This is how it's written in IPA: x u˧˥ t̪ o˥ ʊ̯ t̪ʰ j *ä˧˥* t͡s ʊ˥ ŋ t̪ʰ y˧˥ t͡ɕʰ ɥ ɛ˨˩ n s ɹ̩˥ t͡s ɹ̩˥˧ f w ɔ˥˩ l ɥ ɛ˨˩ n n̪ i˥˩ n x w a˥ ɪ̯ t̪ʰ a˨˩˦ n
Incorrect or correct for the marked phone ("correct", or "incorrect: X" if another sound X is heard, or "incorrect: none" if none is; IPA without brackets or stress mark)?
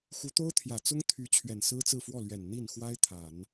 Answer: incorrect: ä˨˩